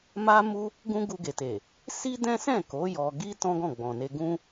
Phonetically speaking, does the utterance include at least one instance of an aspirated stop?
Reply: no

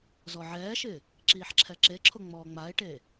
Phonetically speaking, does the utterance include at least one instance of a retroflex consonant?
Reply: yes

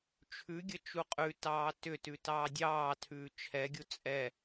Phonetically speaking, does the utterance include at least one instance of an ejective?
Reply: yes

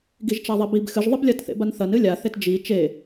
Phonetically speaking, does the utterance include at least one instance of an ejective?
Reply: no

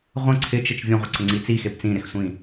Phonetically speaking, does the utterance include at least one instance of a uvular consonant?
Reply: yes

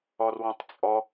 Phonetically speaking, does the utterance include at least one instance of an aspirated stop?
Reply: no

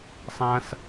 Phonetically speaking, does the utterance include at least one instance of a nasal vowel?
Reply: yes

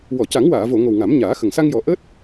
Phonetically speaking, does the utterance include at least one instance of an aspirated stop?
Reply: no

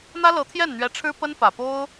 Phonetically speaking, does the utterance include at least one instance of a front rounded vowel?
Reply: no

